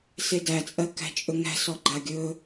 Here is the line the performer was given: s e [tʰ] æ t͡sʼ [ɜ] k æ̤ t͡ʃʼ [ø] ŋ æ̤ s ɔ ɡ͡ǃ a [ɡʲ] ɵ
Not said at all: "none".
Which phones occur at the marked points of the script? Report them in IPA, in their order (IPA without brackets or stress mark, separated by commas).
d, ɜ, ɵ, ɡʲ